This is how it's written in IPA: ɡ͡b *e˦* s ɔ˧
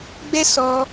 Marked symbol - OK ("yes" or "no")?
no